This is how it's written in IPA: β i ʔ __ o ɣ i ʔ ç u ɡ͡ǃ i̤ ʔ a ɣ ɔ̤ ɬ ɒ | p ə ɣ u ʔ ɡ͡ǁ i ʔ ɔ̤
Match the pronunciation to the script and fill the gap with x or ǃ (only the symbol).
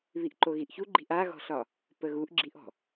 ǃ